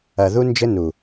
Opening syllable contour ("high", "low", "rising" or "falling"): low